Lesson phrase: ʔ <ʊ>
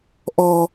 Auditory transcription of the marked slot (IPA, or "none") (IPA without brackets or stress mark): ɔ